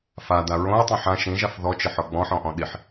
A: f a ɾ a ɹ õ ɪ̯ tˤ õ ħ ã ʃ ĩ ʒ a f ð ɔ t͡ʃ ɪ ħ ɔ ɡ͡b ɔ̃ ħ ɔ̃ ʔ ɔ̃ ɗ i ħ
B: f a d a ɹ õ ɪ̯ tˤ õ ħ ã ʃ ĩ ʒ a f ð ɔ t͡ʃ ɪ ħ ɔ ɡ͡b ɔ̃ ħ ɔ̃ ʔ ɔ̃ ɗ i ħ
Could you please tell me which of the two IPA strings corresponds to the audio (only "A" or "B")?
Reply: B